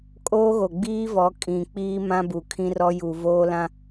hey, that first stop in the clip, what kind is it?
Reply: ejective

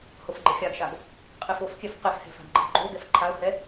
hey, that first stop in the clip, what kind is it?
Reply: click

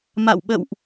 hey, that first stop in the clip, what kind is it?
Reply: implosive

